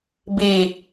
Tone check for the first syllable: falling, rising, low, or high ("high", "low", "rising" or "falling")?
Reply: low